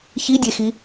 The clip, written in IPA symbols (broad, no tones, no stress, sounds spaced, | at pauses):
ç i dʲ e x i